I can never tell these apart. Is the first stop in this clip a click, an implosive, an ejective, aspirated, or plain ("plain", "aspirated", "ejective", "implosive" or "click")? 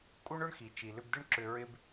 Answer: ejective